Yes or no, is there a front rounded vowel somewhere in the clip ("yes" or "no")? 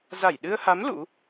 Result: no